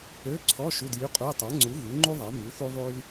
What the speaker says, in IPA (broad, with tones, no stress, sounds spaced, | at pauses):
ø˧˥˧ ǀʰ ɔ˧˥˧ ʃ u˧˥˧ d j y˧˥˧ qʼ u˧˥˧ j tˤ a˨˥ ŋ͡ǀ u˨˥ ɣ y˨˥ ŋ͡ǃ u˥ ðˤ a˨˥ m y˨˥ θ u˥ ðˤ y˥ l